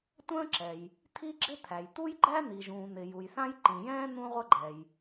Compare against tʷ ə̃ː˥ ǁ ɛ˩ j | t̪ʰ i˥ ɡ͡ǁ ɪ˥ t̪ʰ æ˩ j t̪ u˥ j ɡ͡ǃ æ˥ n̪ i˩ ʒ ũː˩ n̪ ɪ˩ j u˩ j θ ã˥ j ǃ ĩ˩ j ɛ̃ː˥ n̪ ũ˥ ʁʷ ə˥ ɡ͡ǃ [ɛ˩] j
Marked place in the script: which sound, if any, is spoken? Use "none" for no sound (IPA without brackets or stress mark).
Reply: ɛ˩